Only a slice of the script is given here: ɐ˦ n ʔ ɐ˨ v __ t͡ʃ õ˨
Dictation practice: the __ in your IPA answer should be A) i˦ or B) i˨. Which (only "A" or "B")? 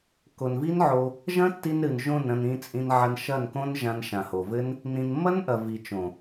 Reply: B